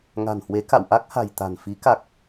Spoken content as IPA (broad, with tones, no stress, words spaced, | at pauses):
ŋa̤˨˩nhwe˨˦ka̰˧˨w ʔa˦˥k̚ha̤˨˩jt̪a̤˨˩n fi˨˦ ka˨˩k̚